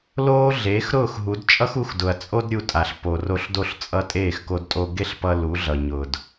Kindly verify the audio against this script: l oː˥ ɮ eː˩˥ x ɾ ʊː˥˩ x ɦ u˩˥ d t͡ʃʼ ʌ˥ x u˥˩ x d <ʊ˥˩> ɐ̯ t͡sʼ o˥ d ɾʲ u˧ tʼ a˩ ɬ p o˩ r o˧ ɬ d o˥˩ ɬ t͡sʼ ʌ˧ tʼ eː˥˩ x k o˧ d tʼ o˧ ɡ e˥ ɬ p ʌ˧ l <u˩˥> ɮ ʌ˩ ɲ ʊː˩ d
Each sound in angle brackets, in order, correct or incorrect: incorrect, correct

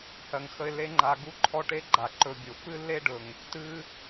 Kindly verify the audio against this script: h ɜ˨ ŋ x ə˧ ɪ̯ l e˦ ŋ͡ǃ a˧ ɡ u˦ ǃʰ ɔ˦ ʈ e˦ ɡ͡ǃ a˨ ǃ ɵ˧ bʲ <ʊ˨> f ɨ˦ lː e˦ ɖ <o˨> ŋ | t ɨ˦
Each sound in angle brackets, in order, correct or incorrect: correct, incorrect

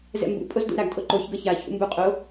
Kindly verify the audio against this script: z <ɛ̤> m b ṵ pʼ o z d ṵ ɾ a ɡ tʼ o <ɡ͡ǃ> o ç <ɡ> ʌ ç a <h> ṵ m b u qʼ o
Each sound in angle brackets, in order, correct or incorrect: incorrect, incorrect, correct, incorrect

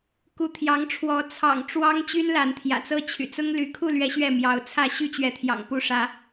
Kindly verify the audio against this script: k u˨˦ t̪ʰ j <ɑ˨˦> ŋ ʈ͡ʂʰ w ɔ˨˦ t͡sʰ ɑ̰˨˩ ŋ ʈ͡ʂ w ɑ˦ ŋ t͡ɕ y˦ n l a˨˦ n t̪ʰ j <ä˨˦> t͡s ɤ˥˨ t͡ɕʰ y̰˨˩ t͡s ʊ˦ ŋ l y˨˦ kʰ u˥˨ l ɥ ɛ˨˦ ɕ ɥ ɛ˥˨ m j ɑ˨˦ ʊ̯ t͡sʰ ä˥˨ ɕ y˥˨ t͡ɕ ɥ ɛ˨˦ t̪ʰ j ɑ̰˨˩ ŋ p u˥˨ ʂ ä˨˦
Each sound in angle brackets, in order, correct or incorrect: correct, incorrect

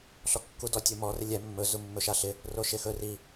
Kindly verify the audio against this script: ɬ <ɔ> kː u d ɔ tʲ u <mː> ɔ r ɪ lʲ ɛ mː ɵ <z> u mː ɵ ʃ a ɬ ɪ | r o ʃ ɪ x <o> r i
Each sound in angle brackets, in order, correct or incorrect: correct, incorrect, correct, incorrect

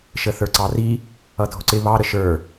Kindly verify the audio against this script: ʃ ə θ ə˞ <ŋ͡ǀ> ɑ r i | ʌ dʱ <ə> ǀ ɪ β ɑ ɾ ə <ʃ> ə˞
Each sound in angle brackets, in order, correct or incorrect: incorrect, incorrect, correct

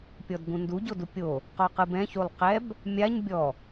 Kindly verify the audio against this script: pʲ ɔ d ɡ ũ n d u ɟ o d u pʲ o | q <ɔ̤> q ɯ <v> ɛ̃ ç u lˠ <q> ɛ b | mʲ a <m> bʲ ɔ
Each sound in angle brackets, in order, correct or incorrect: incorrect, incorrect, correct, incorrect

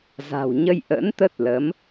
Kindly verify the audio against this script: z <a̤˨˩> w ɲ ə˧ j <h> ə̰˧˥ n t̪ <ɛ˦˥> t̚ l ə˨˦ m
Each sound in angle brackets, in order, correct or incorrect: correct, incorrect, incorrect

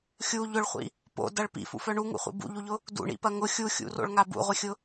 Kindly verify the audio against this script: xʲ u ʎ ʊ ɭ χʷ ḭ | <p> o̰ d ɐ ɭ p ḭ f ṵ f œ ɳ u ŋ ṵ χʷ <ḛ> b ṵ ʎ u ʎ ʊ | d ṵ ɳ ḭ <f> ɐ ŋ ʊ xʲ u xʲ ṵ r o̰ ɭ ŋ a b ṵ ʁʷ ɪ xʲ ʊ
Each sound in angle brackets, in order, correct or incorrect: correct, incorrect, incorrect

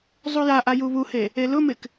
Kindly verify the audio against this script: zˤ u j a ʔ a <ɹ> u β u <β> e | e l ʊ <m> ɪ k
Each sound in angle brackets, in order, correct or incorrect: incorrect, incorrect, correct

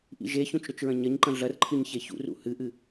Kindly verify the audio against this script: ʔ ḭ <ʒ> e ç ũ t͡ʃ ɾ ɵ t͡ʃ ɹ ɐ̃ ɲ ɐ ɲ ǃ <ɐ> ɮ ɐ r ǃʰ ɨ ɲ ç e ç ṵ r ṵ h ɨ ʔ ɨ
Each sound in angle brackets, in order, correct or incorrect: correct, incorrect

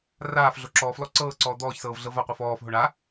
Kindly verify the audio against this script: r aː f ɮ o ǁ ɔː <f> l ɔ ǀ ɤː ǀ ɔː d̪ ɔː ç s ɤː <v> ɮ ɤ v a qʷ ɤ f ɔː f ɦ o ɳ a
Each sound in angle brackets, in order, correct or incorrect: correct, correct

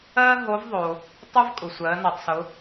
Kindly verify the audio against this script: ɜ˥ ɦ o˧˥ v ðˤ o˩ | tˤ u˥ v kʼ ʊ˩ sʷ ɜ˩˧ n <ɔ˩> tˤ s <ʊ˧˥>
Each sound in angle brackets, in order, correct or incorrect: correct, incorrect

